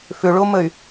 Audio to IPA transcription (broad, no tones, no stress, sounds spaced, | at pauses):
f ʏ ɭ o m ə y̯